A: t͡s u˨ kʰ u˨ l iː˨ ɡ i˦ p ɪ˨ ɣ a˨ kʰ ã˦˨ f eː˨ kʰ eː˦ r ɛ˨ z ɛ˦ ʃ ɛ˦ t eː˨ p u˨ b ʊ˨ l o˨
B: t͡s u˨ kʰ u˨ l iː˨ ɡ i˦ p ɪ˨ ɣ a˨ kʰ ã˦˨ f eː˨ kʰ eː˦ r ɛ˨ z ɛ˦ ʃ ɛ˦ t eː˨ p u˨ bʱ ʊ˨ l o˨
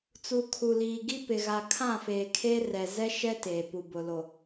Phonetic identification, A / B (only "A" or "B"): A